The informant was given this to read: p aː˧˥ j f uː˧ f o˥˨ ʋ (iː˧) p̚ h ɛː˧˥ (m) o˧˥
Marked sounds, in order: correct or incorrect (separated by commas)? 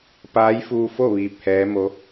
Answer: correct, correct